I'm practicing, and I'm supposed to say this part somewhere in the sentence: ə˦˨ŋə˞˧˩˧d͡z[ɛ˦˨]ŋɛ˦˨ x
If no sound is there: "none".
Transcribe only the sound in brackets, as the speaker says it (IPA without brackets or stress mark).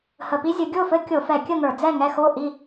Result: ɛ˦˨